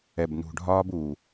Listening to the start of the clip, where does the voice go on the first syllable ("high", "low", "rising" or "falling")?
low